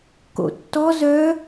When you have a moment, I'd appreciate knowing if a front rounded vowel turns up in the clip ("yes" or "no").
yes